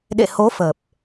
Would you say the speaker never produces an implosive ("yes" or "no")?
no